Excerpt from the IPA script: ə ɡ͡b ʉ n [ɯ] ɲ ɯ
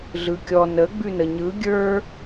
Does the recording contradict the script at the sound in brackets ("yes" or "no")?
yes